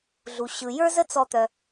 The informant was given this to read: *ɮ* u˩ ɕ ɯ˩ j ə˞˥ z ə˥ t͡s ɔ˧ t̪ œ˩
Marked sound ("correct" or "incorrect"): correct